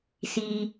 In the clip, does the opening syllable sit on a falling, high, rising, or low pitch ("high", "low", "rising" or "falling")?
high